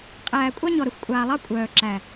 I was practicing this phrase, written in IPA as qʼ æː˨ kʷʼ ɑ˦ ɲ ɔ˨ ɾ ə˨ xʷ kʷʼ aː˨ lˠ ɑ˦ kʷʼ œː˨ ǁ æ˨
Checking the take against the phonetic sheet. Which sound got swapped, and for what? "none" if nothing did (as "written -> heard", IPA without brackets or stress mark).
none